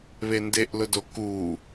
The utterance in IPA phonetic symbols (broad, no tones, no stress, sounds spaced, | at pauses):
β e n d e ʔ l ʊ d o k u